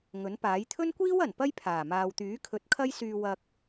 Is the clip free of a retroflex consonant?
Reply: yes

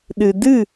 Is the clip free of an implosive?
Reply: no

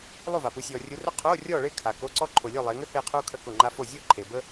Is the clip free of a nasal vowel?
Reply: yes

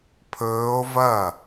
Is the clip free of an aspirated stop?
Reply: no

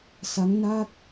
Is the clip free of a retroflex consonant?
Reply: yes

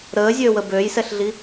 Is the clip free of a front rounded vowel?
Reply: no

